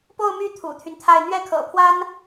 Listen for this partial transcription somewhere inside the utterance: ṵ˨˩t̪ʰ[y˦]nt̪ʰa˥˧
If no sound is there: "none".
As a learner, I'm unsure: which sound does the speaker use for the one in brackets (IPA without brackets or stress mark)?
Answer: y˦